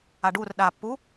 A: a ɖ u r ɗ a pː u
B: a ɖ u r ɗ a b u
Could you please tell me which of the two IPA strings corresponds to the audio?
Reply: A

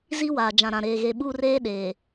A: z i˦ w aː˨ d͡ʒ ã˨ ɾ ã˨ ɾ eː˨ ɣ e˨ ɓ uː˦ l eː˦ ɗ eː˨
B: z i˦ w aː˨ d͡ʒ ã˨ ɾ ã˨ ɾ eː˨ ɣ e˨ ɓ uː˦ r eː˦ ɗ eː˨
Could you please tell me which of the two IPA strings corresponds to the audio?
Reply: B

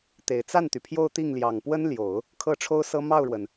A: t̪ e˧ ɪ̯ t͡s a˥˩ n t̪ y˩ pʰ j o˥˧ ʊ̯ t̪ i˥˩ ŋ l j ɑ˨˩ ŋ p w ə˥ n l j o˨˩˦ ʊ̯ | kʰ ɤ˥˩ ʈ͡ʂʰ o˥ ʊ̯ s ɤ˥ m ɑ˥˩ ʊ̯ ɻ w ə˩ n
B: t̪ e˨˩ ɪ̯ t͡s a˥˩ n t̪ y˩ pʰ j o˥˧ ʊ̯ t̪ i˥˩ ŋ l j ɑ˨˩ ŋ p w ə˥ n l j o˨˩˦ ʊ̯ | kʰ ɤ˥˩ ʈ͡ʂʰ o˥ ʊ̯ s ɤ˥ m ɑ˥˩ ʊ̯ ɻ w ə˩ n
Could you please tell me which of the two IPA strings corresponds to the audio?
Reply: B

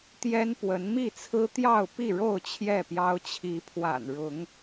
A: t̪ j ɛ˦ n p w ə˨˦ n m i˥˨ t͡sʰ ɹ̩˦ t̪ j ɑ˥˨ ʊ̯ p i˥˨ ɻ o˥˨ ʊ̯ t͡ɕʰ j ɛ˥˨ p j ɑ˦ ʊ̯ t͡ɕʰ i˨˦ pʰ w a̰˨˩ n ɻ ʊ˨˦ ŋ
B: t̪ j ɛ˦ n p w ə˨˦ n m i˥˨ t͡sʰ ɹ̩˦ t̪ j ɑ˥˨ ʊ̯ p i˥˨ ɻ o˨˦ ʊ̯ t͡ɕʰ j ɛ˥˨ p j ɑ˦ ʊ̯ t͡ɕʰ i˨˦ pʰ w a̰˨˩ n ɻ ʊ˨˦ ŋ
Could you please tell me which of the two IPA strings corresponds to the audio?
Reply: A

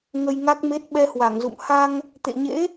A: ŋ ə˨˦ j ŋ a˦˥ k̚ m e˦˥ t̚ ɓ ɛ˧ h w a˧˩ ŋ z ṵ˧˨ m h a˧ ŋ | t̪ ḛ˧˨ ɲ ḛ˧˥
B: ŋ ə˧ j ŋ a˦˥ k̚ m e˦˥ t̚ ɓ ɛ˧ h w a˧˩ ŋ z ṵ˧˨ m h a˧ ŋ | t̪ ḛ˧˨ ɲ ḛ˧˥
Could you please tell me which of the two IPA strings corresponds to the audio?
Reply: B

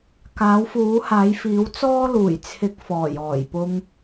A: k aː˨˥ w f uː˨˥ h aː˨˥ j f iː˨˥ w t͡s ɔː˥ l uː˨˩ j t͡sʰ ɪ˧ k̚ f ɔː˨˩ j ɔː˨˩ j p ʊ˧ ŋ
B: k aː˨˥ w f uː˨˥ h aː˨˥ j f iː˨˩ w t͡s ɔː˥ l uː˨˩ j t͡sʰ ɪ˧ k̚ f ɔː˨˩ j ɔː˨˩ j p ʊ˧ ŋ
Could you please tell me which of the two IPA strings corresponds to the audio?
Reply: A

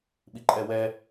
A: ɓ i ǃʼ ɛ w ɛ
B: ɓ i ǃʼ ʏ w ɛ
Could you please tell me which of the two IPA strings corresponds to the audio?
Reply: A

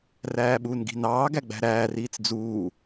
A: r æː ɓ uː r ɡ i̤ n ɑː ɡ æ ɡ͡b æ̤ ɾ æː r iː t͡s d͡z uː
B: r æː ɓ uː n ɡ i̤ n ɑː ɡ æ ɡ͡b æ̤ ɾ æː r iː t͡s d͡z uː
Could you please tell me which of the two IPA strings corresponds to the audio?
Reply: B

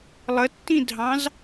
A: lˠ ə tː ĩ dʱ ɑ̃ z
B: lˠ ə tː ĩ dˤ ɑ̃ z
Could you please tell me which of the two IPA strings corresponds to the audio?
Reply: A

